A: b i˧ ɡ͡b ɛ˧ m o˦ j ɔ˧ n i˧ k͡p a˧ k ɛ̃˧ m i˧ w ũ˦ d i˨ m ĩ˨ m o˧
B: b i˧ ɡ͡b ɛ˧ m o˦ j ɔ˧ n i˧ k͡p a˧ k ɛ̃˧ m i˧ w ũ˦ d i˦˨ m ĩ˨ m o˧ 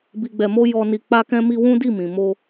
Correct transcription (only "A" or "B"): B